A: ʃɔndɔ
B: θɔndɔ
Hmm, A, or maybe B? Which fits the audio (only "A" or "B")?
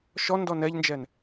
A